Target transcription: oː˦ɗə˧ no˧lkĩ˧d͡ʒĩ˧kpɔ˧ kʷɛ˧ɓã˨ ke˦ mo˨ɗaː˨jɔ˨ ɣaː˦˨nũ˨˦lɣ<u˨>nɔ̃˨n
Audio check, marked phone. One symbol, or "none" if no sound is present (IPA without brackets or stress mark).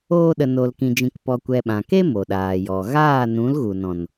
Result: u˨